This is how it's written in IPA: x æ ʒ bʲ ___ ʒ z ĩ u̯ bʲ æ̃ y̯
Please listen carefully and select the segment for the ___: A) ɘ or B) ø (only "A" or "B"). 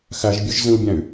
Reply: B